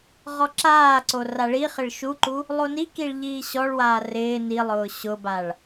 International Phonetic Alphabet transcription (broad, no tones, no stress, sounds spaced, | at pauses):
ʁ ɔ ǁ aː ǀ o r a ɭ i χ ɪ ɭ ʃ u ǃ u | lˠ o n i k i ɭ ʎ iː ɕ ɔ ɭ w aː r ɪː n i lˠ ʊː ɕ ʊ b a ɭ